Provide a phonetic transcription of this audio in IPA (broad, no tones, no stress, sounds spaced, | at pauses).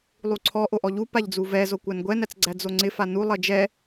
lˠ u ǀʰ ɔ ʔ o ʔ ɔ ʎ u p a ʎ d͡z u v ɛ z o kʷ æ n ɡʷ ɛ n æ t͡s ɡ͡ǀ æ d͡z o ŋ͡ǀ ɪ f a n u lˠ ʌ d͡ʒ ɛ